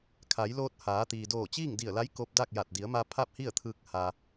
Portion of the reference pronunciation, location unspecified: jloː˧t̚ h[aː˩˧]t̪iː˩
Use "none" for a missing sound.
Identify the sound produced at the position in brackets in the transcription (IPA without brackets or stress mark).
aː˩˧